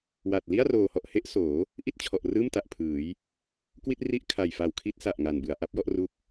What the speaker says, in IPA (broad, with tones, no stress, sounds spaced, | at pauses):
w a˨˩ t̚ l i˥˩ a̯ r oː˨˩ h ɔ˨˩ ʔ h e˦˥ ʔ s oː˩˦ | ʔ i˥˩ t̚ t͡ɕʰ ɔ˨˩ ʔ r ɯː˥˩ m t a˨˩ ʔ pʰ ɯː˩˦ j | k w i˥˩ t̚ r i˦˥ ʔ kʰ a˨˩ j f a˨˩ w kʰ i˦˥ t̚ s a˨˩ ʔ ŋ a˨˩ n b ɯ˩˦ a̯ ʔ a˥˩ p̚ j ɔ˥˩ ʔ r u˦˥ k̚